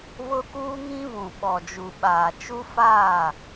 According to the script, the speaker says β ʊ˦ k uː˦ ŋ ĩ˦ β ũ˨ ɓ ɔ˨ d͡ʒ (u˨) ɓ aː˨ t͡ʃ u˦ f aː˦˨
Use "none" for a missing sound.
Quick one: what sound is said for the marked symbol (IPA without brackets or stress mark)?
u˨